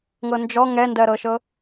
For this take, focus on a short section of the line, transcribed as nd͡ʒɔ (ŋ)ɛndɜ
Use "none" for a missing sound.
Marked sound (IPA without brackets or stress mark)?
ŋ